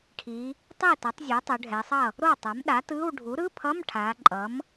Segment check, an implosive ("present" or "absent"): present